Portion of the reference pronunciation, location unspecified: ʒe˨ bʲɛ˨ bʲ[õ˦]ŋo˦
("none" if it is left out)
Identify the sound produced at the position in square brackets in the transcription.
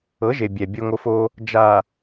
o˦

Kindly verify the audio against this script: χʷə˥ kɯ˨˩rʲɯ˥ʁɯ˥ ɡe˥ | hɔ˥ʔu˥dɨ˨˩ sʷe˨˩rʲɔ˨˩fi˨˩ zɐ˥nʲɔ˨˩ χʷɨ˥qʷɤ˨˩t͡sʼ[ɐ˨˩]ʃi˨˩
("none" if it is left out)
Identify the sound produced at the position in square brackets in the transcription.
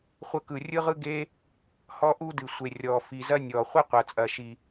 ɐ˨˩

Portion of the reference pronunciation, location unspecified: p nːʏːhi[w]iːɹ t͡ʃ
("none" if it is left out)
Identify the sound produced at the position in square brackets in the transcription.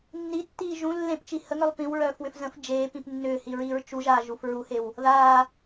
ɹ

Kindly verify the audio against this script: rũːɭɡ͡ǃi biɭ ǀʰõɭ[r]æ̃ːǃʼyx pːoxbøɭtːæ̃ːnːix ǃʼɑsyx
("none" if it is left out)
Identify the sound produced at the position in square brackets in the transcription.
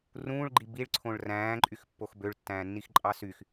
r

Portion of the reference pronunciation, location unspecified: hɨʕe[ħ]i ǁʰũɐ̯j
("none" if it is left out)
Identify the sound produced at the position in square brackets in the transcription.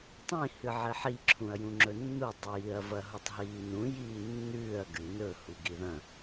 ħ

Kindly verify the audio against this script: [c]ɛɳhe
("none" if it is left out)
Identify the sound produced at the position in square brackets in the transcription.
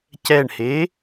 c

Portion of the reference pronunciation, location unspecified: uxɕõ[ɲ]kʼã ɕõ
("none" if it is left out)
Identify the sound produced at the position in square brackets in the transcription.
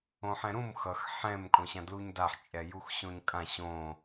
ɲ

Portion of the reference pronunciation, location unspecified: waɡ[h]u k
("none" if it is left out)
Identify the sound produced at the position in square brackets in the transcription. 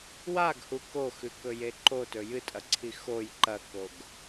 h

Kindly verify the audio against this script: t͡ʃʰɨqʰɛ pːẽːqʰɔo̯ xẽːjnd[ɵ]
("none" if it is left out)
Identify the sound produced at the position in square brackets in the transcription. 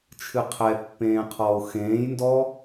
ɔ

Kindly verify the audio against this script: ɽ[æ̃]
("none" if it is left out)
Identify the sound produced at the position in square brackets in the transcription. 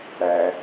æ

